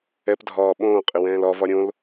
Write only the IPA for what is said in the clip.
ɛ p dʱ ɒː ɓ õː qʼ ɪ w ɛ̃ː l ɒ v ɒ ɾʲ õ l

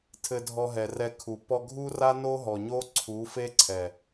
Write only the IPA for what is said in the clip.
tʰ ɘ˧ dʱ ɔ˧ ɦ ɛ˨ r ɛ˧ kʰ u˨ p ɔ˧ ɡʱ u˦ r a˦ n o˦ ɦ ɔ˨ ɲ o˦ ǀʰ u˨˦ f e˦ ǀʰ ɛ˨

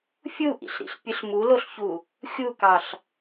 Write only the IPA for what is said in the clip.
fʲ u ʔ ḭ ɬ ɾ ḭ ɬ pʲ ɯ ɬ m u l o ɬ ç u | xʲ u k ɑ ɬ

